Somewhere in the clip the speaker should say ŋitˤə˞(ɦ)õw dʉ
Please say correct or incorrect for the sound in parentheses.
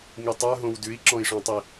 correct